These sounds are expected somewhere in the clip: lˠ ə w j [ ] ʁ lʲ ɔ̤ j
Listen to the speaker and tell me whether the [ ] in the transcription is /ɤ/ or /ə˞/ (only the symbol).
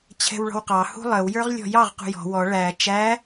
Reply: ə˞